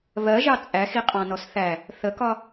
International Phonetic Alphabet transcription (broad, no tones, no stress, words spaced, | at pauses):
βɜʒɑ t͡sʼæxiqʼɑ̃nɔs θæ | θəkɒ